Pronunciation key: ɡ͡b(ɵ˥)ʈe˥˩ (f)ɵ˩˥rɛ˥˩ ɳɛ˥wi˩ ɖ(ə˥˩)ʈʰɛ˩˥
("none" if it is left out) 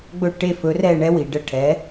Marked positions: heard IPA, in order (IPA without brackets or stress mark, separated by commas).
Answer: ɵ˥˩, f, ə˥˩